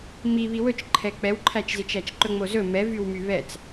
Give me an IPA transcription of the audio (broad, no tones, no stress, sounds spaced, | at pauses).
m i β i w ɵ t͡ʃ ǃʰ ɛ k͡p ɛ w ǃʰ æ t͡ʃ z i t͡ʃ æ t͡ʃ ǃ ɵ ŋ͡m o z ɵ m ɛ v y w m y β ɛ t͡s